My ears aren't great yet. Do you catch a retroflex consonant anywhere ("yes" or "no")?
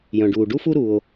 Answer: yes